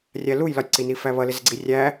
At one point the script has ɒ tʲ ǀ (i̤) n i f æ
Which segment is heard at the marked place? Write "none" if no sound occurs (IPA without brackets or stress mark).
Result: i